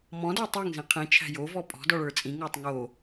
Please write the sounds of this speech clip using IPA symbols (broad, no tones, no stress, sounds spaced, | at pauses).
m ɔ̃ d ə˞ tˤ æ ŋ z ĩ qʰ ĩ t͡ʃʰ æ̤ j o v ɔ pʼ ɔ̤ d ɔ ɭ ə˞ t͡sʼ ĩ ŋ ə˞ tˤ ŋ o